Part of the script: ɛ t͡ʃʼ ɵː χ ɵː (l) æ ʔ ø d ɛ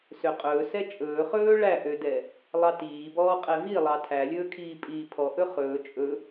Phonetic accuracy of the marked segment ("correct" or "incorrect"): incorrect